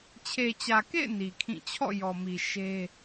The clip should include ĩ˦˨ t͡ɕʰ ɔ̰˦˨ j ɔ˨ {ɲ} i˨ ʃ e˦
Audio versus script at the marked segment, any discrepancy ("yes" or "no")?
yes